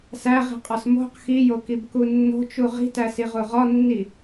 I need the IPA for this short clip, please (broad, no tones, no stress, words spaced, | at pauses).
sæʁi̤qʼɒs mo̤q xijokibku nːo̤t͡ʃu ʁi̤tæsiʁu ʁɒnːi